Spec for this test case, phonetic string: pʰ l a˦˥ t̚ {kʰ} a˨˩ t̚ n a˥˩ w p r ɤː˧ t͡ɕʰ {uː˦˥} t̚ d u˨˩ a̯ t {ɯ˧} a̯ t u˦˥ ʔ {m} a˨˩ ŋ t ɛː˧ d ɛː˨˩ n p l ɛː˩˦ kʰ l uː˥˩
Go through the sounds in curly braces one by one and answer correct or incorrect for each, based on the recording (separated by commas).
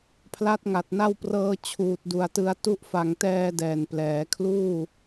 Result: incorrect, incorrect, correct, incorrect